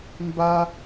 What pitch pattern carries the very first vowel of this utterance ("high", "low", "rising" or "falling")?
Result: high